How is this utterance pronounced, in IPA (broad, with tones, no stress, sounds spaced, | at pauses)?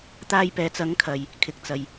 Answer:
t̪ aː˧ j p ɛː˨ t͡s ɐ˨˥ ŋ kʰ ɐ˨ j | kʰ ɪ˨ k̚ t͡s ɐ˨ j